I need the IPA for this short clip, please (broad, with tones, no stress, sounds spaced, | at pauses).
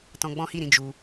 t ɔ̃˧ ɡ͡b ɔ̃˦ h i˦˨ ɾ ĩ˨˦ d͡ʒ u˧